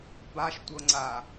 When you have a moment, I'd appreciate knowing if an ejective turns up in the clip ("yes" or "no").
no